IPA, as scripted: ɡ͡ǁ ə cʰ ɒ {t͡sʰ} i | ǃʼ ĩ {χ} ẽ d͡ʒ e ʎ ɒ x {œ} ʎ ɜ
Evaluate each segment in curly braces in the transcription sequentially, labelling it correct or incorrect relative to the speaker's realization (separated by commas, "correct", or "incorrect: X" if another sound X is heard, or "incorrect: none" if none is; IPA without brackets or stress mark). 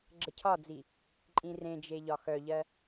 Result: incorrect: d͡z, incorrect: r, correct